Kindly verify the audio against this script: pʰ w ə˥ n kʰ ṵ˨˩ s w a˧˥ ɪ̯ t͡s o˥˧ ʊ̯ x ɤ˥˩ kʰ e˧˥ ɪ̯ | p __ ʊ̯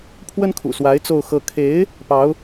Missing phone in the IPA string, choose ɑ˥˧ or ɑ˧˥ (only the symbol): ɑ˧˥